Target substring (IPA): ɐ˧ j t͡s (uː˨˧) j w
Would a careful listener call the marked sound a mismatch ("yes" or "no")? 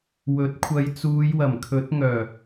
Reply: no